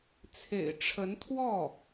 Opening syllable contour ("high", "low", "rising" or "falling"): low